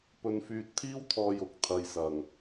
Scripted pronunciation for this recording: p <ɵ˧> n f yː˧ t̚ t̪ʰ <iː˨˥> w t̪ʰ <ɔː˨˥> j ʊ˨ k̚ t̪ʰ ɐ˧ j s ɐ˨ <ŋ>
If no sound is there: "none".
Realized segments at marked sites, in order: ɵ˧, iː˥, ɔː˧, ŋ

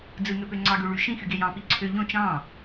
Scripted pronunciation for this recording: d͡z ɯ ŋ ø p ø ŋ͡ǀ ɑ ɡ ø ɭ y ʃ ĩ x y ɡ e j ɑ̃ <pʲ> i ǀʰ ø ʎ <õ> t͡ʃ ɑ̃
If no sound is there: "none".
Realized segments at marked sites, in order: p, õ

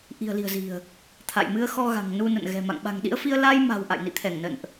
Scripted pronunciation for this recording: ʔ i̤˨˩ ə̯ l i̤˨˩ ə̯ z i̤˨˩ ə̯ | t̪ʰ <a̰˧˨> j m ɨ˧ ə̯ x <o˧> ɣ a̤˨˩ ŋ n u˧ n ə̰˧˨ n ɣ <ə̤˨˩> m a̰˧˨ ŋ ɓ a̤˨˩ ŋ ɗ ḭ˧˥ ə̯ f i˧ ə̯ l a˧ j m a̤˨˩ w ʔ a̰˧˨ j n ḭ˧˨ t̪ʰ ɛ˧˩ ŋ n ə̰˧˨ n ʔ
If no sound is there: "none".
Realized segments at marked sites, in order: a̰˧˨, ɔ˧, ɛ̤˨˩

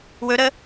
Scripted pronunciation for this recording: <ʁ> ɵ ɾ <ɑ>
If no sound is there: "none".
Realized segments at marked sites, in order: w, ə

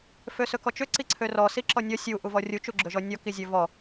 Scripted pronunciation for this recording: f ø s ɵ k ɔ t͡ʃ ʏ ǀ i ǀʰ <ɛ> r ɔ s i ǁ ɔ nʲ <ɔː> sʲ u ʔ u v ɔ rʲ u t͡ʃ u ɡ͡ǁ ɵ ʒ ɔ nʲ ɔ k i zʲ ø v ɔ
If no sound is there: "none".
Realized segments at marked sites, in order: ø, ɔ

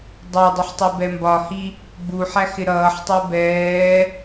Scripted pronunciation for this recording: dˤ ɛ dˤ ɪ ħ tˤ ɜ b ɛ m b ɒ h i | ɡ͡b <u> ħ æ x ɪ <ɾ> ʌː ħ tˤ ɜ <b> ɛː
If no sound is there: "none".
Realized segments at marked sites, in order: u, ɾ, b

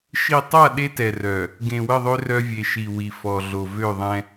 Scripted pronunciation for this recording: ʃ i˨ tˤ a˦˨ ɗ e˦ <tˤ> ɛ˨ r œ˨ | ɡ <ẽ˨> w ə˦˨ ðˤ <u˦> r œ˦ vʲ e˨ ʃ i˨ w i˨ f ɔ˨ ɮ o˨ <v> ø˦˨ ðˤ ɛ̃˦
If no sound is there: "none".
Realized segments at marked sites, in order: t, ẽ˨, ø˦, v

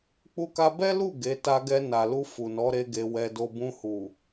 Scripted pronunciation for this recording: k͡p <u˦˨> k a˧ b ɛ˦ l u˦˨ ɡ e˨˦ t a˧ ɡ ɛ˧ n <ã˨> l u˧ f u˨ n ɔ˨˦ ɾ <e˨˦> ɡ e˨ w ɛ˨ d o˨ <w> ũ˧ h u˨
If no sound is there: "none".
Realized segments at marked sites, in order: u˧, a˨, e˧, b

